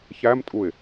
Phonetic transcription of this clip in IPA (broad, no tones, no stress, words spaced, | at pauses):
çæmtʼuɪ̯